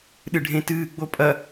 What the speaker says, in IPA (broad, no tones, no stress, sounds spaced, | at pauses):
ɗ ɨ ɖʱ ẽ t ɨː ɡ͡b o pʼ ɐ